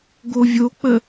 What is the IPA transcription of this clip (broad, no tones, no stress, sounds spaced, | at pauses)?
ɡ o vʲ o k͡p ə